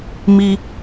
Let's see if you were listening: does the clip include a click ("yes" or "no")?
no